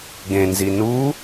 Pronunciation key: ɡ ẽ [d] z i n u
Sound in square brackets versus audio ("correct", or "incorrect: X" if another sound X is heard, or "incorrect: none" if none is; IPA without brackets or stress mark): incorrect: n